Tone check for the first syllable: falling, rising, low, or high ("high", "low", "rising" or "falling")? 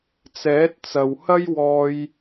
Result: rising